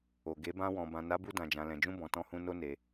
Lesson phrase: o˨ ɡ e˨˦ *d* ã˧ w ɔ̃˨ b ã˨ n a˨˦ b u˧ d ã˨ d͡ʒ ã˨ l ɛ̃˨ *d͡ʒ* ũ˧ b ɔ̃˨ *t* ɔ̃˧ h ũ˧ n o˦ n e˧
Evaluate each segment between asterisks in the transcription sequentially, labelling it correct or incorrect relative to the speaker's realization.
incorrect, correct, correct

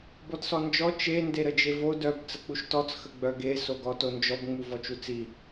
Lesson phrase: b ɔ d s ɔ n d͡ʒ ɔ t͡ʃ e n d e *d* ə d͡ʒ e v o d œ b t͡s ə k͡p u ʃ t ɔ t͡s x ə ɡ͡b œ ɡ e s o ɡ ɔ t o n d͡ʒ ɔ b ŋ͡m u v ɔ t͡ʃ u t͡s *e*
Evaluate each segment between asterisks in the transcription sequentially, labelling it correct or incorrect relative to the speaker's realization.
incorrect, incorrect

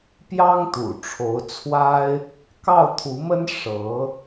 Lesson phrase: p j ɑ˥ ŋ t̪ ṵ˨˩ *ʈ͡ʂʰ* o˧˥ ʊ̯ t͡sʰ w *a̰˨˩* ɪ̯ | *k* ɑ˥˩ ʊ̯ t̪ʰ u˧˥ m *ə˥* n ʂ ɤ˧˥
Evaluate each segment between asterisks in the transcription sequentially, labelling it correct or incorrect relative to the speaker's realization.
correct, incorrect, correct, correct

